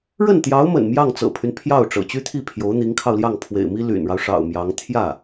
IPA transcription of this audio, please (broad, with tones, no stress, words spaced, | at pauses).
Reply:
ɻə˥˩nt̪jɑ˧˥ʊ̯mə̰˨˩n mjɑ˥˩ŋt͡sɤ̰˨˩pʰy˦n pʰjɑ˥˩ʊ̯ʈ͡ʂɤ̰˨˩ t͡ɕy˥t̪ʰi˥˩pʰjo˧˥ʊ̯ n̪i˧˥ŋkʰɑ˧ʊ̯ljɑ˥˩ŋ pʰwḛ˨˩ɪ̯mi˥ ly̰˨˩nɻɑ˦ʊ̯ʂɑ̰˨˩ʊ̯ mjɑ˧˥ŋ t̪ʰjä˥˩